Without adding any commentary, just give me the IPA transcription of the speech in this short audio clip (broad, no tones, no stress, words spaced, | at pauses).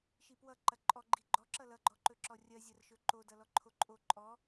ʃipwʌ ǃɐǃʼɔɡ͡ǃi ɡ͡ǃɔǁʌ lʌɡ͡ǃɔǃɵ ǁɔrʲɐzʲɐr ʃɵǃo dʌlɔǃʰoǃʼo ǃʼɔ